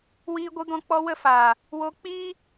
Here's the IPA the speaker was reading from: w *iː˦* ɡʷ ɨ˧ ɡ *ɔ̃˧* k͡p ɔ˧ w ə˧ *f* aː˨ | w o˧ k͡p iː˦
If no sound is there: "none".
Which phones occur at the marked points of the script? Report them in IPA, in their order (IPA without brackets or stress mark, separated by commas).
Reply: iː˧, ɔ̃˧, f